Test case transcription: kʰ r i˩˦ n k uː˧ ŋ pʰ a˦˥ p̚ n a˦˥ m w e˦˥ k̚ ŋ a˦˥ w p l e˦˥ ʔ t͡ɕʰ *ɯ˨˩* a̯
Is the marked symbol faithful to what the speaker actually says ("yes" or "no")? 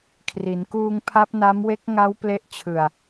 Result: yes